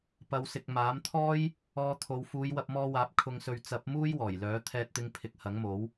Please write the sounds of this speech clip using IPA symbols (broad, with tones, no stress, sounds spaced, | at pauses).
p ɐ˨˧ w s ɪ˨ k̚ m aː˨˥ m t̪ʰ ɔː˥ j | ɔː˧ t̪ʰ o˨˧ w f uː˨˧ j w ɐ˧ p̚ m ɔː˧ w aː˨˥ p̚ kʰ ʊ˧ ŋ s ɵ˧ ɥ t͡s ɐ˨˥ p̚ m uː˥ j w ɔː˨˩ j l œː˨˥ t̪ʰ ɛː˧ t̚ t̪ ɪ˧ ŋ pʰ ɪ˨˥ k̚ h ɐ˨˥ ŋ m o˨˥ w